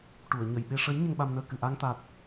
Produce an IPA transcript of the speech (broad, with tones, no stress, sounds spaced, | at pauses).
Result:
ʈ u˨˩˨ ə̯ ɲ ə˨˩˨ j ɓ e˧ ʂ ə˧˥ j ɲ ə˧ ŋ ɓ a˧ m n əː˧ k ɨ˨˩˨ ʔ a˧ ŋ t̪ a˨˩ t̚